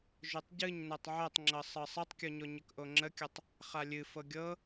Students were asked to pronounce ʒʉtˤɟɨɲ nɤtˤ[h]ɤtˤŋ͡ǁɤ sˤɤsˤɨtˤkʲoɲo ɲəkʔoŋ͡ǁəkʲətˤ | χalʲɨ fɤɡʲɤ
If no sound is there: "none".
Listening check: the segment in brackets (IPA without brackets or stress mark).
ʕ